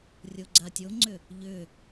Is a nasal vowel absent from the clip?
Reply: yes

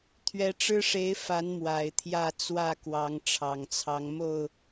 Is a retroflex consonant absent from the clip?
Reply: no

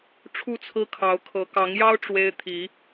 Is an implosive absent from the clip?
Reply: yes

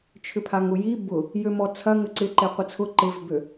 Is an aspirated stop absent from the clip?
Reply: no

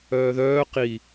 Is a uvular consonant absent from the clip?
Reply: no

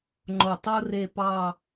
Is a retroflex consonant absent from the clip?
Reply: yes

